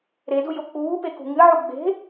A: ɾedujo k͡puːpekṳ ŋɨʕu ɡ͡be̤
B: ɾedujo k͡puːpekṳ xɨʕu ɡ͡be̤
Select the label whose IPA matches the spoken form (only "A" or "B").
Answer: A